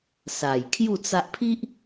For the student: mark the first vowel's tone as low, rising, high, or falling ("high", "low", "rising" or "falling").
low